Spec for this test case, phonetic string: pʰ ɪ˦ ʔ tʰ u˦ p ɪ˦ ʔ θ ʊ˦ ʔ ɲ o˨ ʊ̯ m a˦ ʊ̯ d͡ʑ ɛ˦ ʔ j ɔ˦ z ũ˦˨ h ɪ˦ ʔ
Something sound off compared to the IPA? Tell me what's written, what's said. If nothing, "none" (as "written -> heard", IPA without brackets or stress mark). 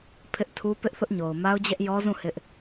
none